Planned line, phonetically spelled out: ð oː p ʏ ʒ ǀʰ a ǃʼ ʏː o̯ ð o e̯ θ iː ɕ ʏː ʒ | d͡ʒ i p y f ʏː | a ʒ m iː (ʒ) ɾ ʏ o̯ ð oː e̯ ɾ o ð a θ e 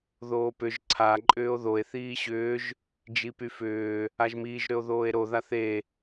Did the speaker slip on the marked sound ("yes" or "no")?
no